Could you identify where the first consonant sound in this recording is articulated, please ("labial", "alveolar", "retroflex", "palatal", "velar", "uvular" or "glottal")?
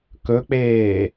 velar